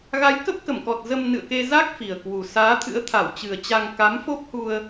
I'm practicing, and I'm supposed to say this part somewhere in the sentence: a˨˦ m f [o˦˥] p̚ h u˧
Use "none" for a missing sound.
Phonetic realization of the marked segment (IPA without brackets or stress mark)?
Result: o˦˥